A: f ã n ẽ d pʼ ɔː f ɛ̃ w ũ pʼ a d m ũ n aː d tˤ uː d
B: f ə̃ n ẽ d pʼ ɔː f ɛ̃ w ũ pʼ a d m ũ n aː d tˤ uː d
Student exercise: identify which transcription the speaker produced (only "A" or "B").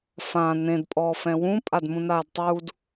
A